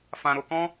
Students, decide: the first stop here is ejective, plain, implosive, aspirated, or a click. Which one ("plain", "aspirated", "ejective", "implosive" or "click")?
plain